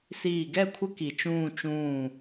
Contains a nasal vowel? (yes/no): yes